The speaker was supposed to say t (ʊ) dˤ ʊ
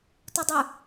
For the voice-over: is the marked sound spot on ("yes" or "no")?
yes